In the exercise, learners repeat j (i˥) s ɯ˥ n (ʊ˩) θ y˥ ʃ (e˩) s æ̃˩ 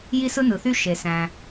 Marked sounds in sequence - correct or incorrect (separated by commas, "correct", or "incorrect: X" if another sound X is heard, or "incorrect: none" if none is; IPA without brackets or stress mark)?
correct, incorrect: ɯ˩, correct